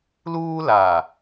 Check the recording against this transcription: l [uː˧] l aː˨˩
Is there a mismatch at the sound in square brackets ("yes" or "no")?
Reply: no